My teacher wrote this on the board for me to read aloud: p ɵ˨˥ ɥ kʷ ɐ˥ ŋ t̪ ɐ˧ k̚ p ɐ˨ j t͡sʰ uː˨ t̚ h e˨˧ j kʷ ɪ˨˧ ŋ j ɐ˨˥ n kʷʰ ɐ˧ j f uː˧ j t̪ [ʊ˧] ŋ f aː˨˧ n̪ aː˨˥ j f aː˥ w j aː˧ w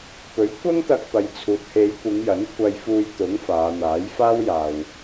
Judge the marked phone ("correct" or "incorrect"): incorrect